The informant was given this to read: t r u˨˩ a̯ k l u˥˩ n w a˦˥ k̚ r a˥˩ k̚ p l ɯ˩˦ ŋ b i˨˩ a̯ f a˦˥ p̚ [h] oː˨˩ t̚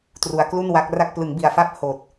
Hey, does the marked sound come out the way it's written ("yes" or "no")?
yes